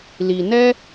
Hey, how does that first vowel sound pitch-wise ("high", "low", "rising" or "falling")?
low